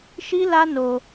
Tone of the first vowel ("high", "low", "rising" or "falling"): high